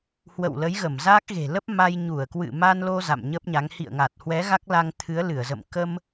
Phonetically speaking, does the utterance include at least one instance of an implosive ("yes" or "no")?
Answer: no